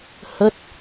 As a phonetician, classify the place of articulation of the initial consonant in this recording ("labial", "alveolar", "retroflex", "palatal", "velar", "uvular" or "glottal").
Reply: glottal